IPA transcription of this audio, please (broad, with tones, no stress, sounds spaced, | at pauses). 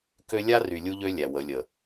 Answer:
k ø˦ lʲ a˦ r y˨ lʲ u˦ ʎ ø˦ lʲ æ˨ w ə˨˦ lʲ ə˨